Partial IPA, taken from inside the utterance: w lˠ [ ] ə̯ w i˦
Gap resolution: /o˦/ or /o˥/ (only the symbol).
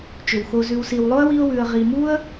o˥